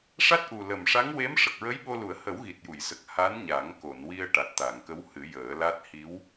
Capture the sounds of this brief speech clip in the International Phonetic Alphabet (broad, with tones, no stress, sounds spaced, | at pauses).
ʂ a˦˥ t̚ ʔ u˨˩ l ə˨˩ m ʂ a˧˥ ŋ w e˧˥ m ʂ ə˨˩ k̚ ɹ ə˧˥ j ɓ o˧ l u˨˩˦ ə̯ h ə˨˩˦ w ɣ i˨˩ t̚ j u˨˩˨ j s ə˨˩ k̚ h a˧˥ n ɲ a˨˩˦ ŋ k o˨˩˨ n w i˧ ə̯ ʈ a˨˩ t̚ t̪ a˨˩˨ ŋ k ə˧˥ w h ɨ˨˩˦ j əː˨˩˦ l a˦˥ t̚ h i˧˥ w